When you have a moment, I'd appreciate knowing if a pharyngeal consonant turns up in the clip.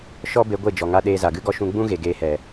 no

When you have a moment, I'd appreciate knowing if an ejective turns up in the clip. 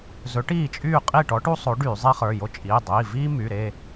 yes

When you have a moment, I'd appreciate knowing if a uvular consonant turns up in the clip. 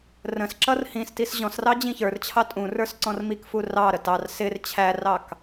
no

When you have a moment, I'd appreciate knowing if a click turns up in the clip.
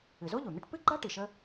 yes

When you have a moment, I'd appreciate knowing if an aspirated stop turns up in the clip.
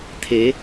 yes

